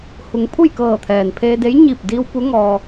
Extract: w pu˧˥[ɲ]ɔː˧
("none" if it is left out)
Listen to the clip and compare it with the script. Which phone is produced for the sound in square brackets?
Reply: ŋ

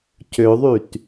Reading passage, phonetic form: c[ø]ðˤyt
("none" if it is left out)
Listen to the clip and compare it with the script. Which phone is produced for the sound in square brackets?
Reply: ø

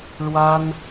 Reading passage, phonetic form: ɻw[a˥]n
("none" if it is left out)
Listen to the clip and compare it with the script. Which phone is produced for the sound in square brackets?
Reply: a˥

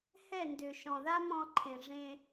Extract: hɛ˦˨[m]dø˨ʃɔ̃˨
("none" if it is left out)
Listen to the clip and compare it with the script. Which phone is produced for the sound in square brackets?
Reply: n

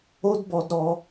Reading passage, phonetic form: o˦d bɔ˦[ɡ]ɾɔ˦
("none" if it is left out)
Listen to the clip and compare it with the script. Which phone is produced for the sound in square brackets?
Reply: d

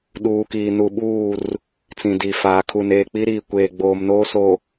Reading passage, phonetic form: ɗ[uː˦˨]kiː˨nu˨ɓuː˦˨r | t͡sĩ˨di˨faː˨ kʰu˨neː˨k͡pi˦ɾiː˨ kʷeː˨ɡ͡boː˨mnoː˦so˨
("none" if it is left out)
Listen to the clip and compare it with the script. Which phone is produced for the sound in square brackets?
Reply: uː˨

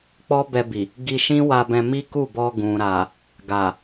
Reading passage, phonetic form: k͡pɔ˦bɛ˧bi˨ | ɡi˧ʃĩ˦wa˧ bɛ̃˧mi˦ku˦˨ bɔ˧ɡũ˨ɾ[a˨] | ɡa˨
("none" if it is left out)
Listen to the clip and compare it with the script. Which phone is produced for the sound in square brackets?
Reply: a˨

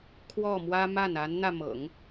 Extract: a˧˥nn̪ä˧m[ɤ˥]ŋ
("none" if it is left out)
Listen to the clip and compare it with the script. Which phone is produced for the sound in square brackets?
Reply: ɤ̰˨˩˦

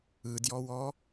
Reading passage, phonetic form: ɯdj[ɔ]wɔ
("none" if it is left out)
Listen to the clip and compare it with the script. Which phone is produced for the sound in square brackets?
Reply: ɔ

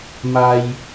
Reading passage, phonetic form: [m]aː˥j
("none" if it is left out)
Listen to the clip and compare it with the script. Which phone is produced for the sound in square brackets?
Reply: m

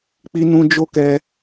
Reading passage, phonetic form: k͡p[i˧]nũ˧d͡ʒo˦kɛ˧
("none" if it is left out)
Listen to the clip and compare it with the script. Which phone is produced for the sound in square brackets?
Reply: i˧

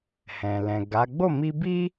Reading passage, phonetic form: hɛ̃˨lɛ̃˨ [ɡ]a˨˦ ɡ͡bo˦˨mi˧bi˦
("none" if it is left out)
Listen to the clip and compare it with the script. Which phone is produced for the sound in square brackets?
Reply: ɡ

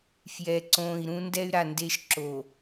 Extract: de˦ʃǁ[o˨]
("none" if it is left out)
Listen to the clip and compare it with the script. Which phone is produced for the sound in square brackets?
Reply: o˨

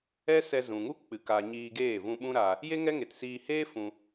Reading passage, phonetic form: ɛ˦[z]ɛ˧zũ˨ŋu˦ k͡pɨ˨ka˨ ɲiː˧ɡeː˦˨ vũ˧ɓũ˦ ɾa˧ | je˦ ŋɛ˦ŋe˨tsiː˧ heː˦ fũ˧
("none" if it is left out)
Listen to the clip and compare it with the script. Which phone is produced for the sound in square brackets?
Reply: s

